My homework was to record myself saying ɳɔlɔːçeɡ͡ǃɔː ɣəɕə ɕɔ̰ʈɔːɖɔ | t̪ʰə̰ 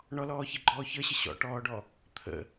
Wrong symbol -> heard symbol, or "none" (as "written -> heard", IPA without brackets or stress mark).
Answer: ɣ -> ç